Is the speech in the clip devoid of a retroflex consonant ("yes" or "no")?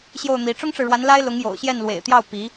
no